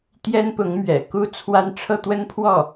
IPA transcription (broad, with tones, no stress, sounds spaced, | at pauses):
t̪ j ɛ˥ n p ʊ˧˥ ŋ m ɥ ɛ̰˨˩ k u˥ t͡sʰ w a˥ n ʈ͡ʂʰ ɤ˥˩ t̪ w ə˥ n pʰ w ɔ˥˩